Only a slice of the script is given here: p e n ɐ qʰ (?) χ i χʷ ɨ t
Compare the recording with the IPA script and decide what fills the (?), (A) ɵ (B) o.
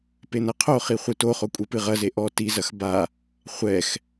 B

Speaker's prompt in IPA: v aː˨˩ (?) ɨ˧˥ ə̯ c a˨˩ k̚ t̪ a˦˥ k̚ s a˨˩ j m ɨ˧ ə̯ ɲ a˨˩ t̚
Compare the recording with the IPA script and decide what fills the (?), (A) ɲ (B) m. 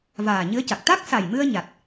A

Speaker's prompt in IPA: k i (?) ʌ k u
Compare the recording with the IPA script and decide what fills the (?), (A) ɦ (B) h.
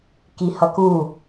B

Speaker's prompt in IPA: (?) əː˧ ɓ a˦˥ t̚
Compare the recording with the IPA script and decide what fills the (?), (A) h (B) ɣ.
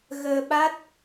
B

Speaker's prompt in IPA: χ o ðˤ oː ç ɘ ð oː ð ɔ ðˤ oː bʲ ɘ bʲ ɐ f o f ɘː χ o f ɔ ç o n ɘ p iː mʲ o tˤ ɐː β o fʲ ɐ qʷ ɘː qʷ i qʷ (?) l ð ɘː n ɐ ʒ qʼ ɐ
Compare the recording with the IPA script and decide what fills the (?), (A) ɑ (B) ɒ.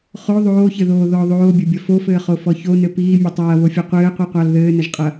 A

